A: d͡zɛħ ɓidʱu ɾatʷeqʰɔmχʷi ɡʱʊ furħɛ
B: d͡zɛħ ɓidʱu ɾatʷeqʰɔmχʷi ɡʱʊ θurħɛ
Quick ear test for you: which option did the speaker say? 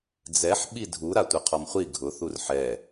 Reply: B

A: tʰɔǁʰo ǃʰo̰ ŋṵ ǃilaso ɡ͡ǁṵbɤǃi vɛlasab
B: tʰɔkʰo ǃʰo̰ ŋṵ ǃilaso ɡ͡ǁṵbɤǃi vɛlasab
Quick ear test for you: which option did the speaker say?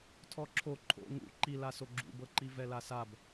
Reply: A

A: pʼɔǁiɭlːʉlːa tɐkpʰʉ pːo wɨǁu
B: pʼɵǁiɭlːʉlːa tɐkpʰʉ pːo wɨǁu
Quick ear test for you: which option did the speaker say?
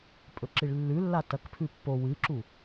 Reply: B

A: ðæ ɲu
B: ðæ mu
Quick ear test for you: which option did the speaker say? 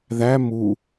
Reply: B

